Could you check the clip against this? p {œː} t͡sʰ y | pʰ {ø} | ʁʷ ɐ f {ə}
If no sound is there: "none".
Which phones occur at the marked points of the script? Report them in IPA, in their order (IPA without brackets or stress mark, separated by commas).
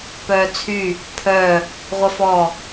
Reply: œː, œ, ɔ